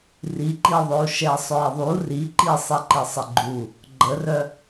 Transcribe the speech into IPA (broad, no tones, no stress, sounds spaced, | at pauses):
r i ǃ i ðˤ ø u̯ ʃ ɛ sˤ œ i̯ ðˤ u r i ǃ i sˤ i ǃ i sˤ ə ɡ͡ǃ u | ɡ͡ǃ ə r œ